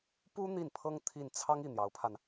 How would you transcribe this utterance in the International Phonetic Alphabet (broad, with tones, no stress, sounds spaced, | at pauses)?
p u˥ n̪ i˥˩ n pʰ ɤ˥ ŋ t̪ʰ i˥˩ n t͡sʰ ɑ˥ ŋ i˥˩ n̪ j ɑ˧˥ ʊ̯ pʰ a˧ n